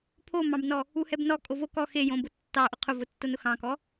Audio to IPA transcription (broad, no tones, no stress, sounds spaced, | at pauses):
pʰ o m ɑ̃ b n ɔ | u h ɛ b n ɔ kʼ o v o k ɔ x e j õ b ʊ tː ɑ ʔ ʊ qʰ ʊ v ʊ tː o n ʊ x ɑ̃ k ɔ